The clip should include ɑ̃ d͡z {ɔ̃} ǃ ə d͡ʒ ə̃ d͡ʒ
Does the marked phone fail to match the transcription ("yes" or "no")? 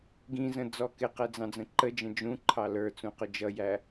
yes